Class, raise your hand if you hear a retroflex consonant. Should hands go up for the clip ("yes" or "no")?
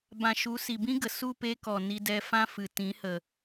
no